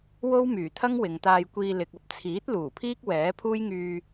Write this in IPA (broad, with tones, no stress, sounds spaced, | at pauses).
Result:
w o˥ w m yː˨˩ t̪ʰ ɐ˥ ŋ w ɪ˨ ŋ t̪ aː˧ j kʷ iː˧ l ɪ˨ k̚ ɐ˧ p̚ t͡sʰ iː˨˥ t̚ l uː˨˩ pʰ iː˥ k̚ w ɛː˨˥ pʰ uː˥ j ŋ yː˧